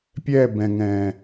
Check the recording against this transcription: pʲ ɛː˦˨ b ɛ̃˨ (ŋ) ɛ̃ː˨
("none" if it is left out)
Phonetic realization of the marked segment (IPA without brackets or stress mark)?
ŋ